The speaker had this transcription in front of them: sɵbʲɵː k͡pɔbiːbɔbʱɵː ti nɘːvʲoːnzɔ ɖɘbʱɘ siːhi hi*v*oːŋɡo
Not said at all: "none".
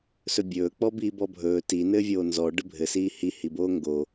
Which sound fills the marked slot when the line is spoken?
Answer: b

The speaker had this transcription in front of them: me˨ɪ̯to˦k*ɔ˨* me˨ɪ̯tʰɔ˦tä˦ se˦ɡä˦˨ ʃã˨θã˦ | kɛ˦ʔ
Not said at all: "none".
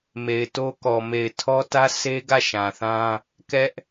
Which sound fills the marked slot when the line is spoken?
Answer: ɔ˨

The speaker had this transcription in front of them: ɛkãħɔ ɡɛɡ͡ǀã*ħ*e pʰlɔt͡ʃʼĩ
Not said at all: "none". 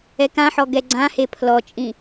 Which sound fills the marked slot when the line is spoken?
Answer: h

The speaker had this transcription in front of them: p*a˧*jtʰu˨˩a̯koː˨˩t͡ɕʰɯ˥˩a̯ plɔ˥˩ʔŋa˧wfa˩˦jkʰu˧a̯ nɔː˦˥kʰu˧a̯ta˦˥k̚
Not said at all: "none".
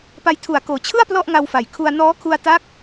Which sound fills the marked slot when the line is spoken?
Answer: a˧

